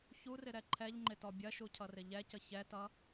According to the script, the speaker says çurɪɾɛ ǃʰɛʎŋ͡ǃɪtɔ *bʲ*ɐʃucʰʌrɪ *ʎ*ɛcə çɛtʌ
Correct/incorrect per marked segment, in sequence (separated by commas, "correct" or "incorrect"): correct, correct